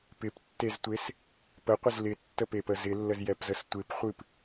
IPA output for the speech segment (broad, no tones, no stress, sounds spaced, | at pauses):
p ɪ p tː e z tʷ e s | p ə qʷ ɪ z l ɪ tː ə p e p ə z ɪ lː ə z j ɛ p z ə s tʷ ɪ p χʷ ɨ p